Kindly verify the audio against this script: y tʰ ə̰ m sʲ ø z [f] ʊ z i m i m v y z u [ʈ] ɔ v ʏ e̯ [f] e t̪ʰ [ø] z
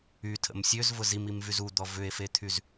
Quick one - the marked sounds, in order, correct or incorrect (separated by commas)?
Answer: incorrect, incorrect, correct, incorrect